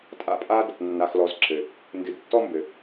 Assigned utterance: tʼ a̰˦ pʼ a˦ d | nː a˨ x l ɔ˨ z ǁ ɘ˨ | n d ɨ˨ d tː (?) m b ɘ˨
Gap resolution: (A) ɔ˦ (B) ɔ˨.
A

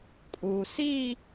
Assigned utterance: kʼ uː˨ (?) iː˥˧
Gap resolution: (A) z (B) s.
B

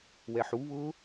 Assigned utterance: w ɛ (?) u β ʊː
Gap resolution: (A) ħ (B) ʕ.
A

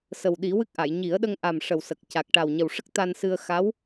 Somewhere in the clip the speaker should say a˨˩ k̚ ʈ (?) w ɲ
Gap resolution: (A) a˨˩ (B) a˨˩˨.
A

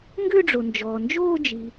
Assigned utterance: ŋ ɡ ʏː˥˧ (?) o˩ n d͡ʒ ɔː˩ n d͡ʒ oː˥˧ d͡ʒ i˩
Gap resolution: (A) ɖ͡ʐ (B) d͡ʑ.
A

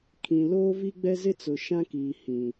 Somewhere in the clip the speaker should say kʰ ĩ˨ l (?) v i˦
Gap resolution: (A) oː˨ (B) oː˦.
B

